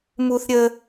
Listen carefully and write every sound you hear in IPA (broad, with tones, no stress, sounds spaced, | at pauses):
m u˥ θ ɾʲ ə˥